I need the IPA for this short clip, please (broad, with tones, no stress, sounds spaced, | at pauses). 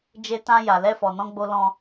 d͡ʒ e˧ t ã˧ j a˨ l ɛ˧ f ɔ˨ n ɔ̃˧ ɡ͡b o˧ l ɔ̃˧